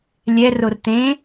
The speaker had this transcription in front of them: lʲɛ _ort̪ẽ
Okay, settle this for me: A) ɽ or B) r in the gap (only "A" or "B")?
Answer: B